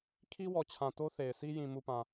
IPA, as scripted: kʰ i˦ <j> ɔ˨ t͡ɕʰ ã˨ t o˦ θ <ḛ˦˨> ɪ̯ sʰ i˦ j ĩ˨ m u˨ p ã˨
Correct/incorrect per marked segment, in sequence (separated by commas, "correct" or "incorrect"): incorrect, incorrect